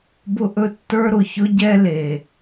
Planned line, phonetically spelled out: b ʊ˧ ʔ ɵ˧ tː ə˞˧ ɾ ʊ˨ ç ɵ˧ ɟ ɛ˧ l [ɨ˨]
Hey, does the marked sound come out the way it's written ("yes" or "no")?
no